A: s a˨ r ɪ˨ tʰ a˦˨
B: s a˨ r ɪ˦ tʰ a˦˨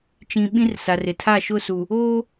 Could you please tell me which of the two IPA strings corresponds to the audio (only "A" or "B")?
A